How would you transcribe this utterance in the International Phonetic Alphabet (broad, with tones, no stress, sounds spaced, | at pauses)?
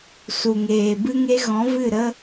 s u˨ ŋ eː˨ b ɨ˦ ŋ e˦ ɣ ɔ̃˨˦ v ɨ˦˨ ɾ ə˦